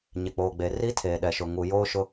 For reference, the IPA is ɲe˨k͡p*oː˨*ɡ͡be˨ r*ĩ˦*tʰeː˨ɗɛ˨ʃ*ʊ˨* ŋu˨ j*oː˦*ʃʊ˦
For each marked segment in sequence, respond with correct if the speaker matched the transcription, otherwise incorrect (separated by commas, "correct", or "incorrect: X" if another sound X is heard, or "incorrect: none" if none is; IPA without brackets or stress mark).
correct, incorrect: i˦, correct, correct